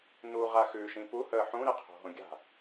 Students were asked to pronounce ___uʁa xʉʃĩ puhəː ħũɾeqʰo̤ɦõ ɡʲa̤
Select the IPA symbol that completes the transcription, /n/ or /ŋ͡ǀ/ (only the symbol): n